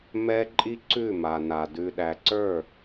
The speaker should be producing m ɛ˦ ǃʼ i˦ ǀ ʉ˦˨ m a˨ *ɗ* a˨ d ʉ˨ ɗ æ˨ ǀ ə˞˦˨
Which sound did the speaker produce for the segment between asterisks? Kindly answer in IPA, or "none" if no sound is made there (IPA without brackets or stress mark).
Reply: n